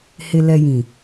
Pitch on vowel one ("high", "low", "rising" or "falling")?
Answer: low